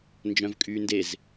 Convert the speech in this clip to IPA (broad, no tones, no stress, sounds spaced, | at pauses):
n d͡ʒ œ̃ v kʼ yː n d e z